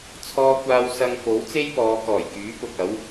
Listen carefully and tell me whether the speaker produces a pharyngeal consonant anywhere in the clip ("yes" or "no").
no